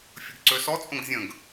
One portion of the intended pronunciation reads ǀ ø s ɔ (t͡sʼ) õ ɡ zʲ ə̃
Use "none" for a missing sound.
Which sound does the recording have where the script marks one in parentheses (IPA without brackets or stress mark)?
t͡sʼ